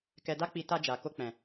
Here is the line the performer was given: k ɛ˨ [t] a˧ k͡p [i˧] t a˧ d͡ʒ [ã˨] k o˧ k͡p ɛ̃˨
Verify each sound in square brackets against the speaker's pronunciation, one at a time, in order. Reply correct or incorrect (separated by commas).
incorrect, incorrect, incorrect